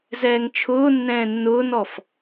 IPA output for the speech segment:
z ɛː ŋ t͡ʃʰ ʊː nː ɛ̃ː nː ʊː n ɔ f

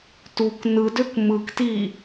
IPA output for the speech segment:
t u k n ɯ d ø k m ɯ k t iː

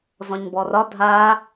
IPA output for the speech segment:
z ɔ̃ ɲ b ɔ r ɒ dʱ a

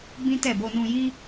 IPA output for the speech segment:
b ĩ˦ t ɛ˦˨ b o˧ n ũ˧ j i˦

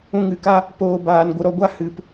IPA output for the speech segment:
ũ˧ ŋ ɨ˨ k a˦ | p oː˧ b aː˨ n ɡʷ ə˨ ɾ ɔ˨ ɡʷ a˦ h ɨ˨ p

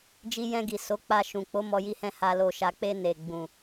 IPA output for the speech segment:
d͡ʒ i˧ j ɛ̃˧ ɡ i˨ s o˨˦ k͡p a˧ ʃ ũ˨ k͡p o˨˦ m ɔ˧ j i˧ h ɛ̃˧ h a˧ l o˨ ʃ a˨ k͡p e˧ n e˨ ɡ͡b ũ˨

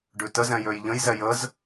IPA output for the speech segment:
ɖ ʉ t ə z ɛ̃ j ø j ʎ ə̃ j z ɛ j ə z

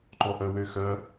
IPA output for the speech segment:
ǃ ɔ ʔ œ w ø x œ

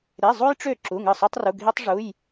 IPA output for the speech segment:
ɾ e˧˥˧ zˤ u˥ j ʈ͡ʂ ø˥˩ ǁ u˧˥˧ ŋ ɯ˥˩ sˤ y˥ tˤ r u˧˥˧ ɡʱ i˥ tˤ ʐ u˧˥˧ j

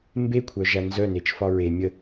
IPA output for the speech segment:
m b e kʷʰ œ ʒ æ n z œ n e t͡ʃ f ɒ ɹ e mʲ ə

